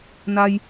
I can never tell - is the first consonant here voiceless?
no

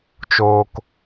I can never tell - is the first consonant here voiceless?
yes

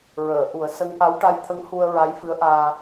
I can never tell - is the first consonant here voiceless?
no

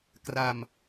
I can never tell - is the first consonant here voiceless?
yes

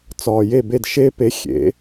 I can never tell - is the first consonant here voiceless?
yes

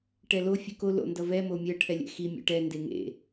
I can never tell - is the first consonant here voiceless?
yes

